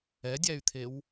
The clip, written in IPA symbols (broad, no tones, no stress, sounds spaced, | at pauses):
ɛ dʲ æ y̯ t̪ʰ e w